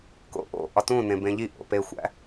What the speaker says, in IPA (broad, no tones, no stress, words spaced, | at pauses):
ko̰ʔo̰ ʔɒtũ nẽbẽʎi ʔo̰pexʷæ̰